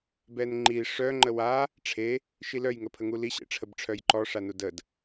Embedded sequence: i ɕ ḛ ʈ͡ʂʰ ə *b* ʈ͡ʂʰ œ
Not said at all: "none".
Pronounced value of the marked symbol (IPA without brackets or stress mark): b